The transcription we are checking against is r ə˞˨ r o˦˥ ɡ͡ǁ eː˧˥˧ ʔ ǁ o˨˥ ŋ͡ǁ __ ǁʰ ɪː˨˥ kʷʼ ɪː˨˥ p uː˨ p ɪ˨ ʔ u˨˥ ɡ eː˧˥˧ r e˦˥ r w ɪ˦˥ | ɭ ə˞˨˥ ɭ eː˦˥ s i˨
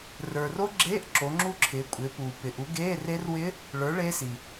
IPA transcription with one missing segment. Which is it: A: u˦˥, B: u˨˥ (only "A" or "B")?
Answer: A